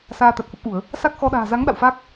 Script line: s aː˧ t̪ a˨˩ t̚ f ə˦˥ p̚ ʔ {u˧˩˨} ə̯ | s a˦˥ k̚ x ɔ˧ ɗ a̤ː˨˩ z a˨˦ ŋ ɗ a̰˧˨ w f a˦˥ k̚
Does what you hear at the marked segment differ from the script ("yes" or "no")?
no